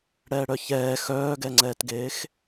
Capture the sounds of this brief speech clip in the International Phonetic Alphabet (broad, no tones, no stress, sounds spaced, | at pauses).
ɽ ɛː ɽ œ ç ɛː x œː ɡ ɛ ŋ͡ǀ ɛː t ɡ eː x